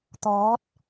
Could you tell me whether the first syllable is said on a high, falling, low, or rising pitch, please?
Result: rising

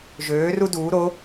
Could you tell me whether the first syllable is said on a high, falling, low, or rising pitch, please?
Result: rising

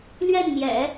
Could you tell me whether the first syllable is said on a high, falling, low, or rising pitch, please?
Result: falling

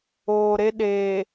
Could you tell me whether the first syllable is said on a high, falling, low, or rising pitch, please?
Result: low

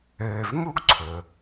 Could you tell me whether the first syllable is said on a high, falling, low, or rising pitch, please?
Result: low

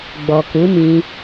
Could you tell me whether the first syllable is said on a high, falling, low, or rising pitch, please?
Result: low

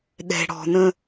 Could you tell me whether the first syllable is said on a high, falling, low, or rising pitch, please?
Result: low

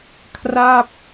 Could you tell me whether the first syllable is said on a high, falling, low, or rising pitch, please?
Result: falling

